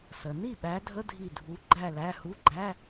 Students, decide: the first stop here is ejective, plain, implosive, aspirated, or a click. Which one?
implosive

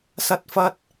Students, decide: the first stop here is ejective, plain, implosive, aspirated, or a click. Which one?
plain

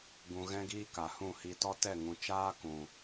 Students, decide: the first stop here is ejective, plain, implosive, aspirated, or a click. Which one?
plain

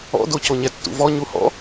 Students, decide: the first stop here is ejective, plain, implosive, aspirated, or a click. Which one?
plain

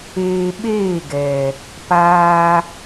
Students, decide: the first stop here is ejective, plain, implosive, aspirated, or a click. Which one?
implosive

